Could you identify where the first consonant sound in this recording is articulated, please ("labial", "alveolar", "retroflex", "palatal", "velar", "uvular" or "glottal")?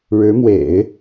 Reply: retroflex